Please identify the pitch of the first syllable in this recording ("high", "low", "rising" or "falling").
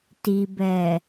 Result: low